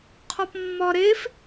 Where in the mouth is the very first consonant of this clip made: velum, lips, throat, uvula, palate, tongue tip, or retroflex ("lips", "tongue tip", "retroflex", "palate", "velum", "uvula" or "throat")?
uvula